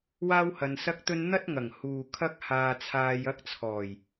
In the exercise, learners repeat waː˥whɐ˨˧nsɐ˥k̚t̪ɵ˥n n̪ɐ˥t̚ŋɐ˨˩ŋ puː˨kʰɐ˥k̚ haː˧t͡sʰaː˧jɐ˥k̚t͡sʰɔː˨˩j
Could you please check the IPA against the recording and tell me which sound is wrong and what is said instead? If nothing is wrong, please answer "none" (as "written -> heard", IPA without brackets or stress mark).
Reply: p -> h